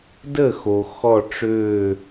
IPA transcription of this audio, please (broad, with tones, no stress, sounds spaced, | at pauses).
d ə˥˩ x o˩ x ɔ˧˩ ʈ͡ʂ ø˧˩